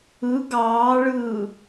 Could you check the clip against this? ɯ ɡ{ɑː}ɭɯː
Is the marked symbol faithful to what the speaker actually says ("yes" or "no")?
yes